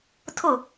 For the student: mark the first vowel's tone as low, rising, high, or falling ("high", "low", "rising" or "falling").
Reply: falling